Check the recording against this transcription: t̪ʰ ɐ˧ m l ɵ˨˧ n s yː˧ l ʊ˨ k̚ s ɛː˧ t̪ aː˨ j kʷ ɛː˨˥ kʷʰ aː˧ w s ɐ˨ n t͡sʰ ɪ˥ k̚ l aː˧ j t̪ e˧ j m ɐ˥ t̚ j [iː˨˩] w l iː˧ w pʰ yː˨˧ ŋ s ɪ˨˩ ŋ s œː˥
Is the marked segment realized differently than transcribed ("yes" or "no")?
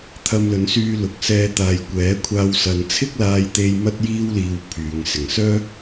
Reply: yes